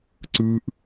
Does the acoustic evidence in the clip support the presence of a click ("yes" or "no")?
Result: yes